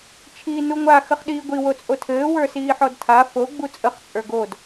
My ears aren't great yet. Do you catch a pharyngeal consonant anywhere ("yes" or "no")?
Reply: yes